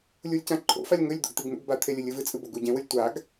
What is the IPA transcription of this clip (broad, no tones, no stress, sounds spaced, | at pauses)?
lʲ u lʲ c ã ǃʰ o̰ f a lʲ ŋ ɵ lʲ d̪ o̰ ɡ t̪ i ɡ n ṵ ɡ b a t̪ʰ e lʲ ɨ lʲ ɨ v ɨ t͡sʼ ɨ b o ɡ u ɟ ẽ w ɨ lʲ tʷ a ɡ